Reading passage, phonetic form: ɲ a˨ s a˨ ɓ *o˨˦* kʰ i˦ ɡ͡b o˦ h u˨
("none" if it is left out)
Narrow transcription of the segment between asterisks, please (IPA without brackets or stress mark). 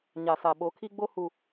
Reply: o˨˦